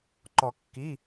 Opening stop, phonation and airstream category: click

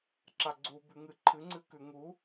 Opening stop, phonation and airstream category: click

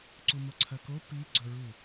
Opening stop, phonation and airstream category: click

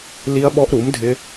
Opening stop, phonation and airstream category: implosive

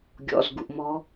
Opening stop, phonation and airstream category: plain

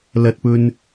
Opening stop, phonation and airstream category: plain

